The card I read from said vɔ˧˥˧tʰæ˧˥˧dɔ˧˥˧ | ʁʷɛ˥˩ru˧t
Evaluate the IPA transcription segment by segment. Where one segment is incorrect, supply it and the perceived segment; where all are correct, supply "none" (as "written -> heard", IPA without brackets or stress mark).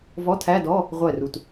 none